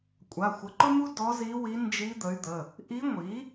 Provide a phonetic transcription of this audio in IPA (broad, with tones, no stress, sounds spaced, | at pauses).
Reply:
kʷʼ a˩˧˩ xʷ ə˩˥ ǃ ʊ˥ m u˥ d ɔ˧˥ z i˧˥ w i˧˥ n d͡ʒ i˧˥ d̪ ə˩˥ y̯ d̪ ə˩˧˩ | ʔ i˧˥ ŋʷ i˩˥